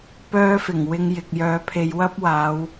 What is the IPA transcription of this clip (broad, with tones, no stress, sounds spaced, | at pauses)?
p œː˥ f ɪ˨˩ ŋ w ɪ˧ ŋ j ɪ˨ k̚ j œː˨˧ pʰ e˨ j w ɐ˥ p̚ w aː˨˧ w